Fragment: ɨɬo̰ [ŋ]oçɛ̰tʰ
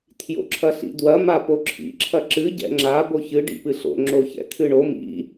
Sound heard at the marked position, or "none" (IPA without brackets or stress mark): ŋ͡ǁ